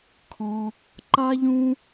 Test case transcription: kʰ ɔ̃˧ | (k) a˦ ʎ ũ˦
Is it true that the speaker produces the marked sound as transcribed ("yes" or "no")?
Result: no